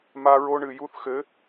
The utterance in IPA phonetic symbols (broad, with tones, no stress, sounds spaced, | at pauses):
m a˦ ɹ o˦ ɳ ɨ˨ j u˦ θ x ɘ˨˦